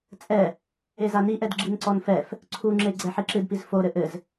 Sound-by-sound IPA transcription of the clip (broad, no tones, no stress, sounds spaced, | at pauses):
t͡sʼ ɛ | e z a n i ʔ ɛ d ɡ͡ǁ i n ǀ ɔ n f ɛ f | ǀʰ u ŋ͡ǁ e ɡ͡ǀ ɛ ħ i ǁ ɨ d p i z f o ɾ ɘ ʔ ɘ z